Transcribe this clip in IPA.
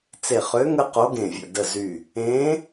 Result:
t͡se˧˩χø˧˥ ŋə˥qo˧˥ɡẽ˧˩ vʲə̰˧˩ də˧˩ zy˧˩ | ẽː˧˥

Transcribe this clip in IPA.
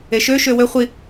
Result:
eʃø ʃøwø χʷi

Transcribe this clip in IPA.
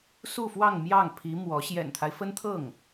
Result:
su˥˧fwɑ˥˧ŋ mjɑ˥˩ŋpʰi˧˥ mwɔ˧˥ ɕjɛ̰˨˩nt̪ʰa˦ɪ̯fə˥nt̪ʰɤ˥˩ŋ

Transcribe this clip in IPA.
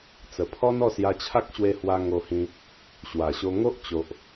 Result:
t͡sə˨˩pʰɔ˦nɔ˥˧ sja˧t͡ɕʰa˦k̚ɕwe˧hwa˧ ŋo˧hĩ˧ | ɕwa˨˩ɕo˧ ŋo˦ʔ t͡ɕo˨ʔ

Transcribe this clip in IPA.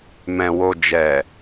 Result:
mɛ̃˨wo˨d͡ʒɛ˨

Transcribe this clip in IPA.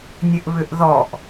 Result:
nʲɘʔβʏʔðɔʔ

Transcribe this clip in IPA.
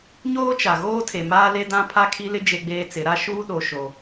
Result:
ɲoː˦t͡ʃa˨ ɣoː˦tʰe˨maː˦ le˦dã˦ pʰa˦kʰi˦lɪ˦ d͡ʒe˦ɡ͡beː˦t͡sɪ˨˦ɾa˦ ʃuː˦ɗo˨ ʃo˨

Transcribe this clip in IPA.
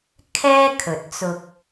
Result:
kʰɛː˥ kʰɵ˨t̚t͡sʊ˧k̚

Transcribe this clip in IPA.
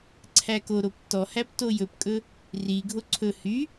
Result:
ǀʰækoɾop tɔhæp tojɵpkʼɵ | riɡʱo ǀʰɵ hy

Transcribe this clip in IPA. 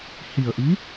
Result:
hi˨˩ə̯ʔi˧˥

